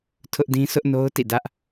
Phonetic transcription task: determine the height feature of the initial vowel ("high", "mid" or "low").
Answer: high